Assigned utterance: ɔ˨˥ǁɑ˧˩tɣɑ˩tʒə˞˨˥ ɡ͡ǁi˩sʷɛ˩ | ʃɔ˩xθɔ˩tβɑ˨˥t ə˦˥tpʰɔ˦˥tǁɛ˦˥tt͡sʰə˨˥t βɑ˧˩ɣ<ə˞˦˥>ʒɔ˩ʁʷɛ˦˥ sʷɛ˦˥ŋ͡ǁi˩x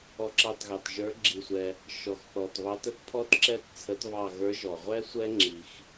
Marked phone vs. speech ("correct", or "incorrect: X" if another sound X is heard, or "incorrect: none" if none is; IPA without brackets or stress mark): incorrect: ə˞˨˥